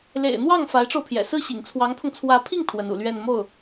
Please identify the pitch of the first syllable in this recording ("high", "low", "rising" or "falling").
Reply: low